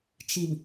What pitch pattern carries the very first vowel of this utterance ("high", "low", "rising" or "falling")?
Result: low